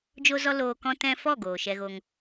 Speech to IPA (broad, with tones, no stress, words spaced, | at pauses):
d͡ʒo˦zɔ˦ loː˧kɔ̃˦tɛ̃˦ fɔ˦˨ ɡoː˨ʃɛ˧ɣo˧ŋ